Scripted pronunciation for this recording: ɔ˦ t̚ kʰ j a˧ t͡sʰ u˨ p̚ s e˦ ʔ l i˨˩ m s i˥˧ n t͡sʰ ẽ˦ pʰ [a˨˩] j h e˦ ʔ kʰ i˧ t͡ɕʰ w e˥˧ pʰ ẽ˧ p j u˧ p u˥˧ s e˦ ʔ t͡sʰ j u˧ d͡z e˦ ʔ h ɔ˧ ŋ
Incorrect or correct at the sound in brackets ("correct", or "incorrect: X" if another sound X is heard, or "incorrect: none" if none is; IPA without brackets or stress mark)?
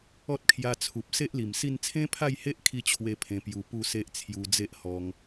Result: incorrect: a˥˧